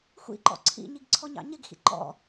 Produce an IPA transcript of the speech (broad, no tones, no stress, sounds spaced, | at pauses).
xʷ ḭ ǃ ɔ̰ ǀʰ ḭ ɲ i ɡ ǀʰ ɔ ɲ ɑ̰ ɲ ɪ ɡ x ḭ ǃ ɔ̰